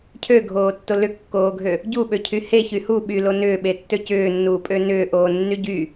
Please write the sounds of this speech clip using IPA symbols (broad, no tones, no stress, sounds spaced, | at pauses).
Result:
cʰ ø ɡʱ oː tː o l ʏ kː oː ɡʱ ø | ɟ u ɓ ø cʰ y h e ç y h u ɓ y l o n ʏː ɓ e tː ø c ʏː nː uː pʼ ø n ʏː ʔ oː nː y ɟ y